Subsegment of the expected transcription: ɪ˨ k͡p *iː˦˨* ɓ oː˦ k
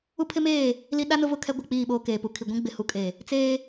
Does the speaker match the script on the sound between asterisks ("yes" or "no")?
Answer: yes